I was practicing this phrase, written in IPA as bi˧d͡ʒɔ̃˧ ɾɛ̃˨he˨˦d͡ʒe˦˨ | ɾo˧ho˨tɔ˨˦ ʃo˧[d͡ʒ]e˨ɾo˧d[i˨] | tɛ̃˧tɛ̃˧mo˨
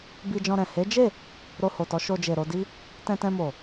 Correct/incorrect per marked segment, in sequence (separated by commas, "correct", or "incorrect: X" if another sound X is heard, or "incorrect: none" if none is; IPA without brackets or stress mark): correct, incorrect: i˦